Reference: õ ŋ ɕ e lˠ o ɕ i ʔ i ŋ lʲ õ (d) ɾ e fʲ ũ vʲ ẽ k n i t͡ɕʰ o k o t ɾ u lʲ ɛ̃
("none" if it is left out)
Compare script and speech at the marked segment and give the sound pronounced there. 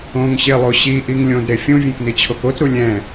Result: d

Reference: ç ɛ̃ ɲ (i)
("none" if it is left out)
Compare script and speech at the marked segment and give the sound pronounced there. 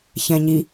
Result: i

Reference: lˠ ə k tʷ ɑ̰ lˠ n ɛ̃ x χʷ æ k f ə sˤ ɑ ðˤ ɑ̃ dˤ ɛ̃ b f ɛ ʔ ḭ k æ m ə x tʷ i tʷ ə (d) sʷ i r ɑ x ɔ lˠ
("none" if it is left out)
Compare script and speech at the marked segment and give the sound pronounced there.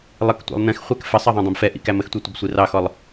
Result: b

